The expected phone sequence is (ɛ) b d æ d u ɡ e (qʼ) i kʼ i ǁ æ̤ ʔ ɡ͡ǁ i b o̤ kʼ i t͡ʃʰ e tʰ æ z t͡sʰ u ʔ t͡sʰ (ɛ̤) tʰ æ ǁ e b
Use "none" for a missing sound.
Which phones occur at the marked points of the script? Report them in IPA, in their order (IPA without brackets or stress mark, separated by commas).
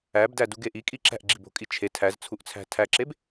æ, ʔ, æ̤